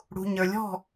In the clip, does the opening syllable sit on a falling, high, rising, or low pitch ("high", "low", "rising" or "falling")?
low